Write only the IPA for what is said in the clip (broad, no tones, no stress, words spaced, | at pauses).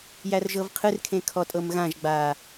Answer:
jærʒɤvqʰɨrkʰẽ kʰɔtʼɤmɣãʒɡ͡baː